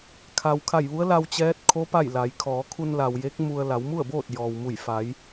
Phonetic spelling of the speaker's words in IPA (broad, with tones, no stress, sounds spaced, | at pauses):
kʰ a˩ w kʰ a˧˩ j ʋ u˧˥ ə̯ l a˧ w t͡ɕ ɛː˧˥ t̚ kʰ o˧˥ p a˥˨ j l a˩˧ j kʰ ɔː˩˧ kʰ u˧ n l a˩ w j e˧˥ k̚ m u˧ ə̯ l a˩˧ w m u˥˨ ə̯ b oː˥˨ t̚ j ɔː˩ w m u˧˩ j f a˩˧ j